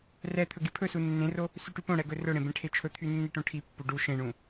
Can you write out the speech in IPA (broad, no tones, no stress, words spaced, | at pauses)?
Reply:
rɛt̪ʰɵ ɡipʰɵsu nːẽro | syʈypõɽɛ ɡɵrɵɽẽ bẽʈʰet͡ʃʰɵt̪ʰy nːiʈõʈʰipːu ɖu ʃẽɳũ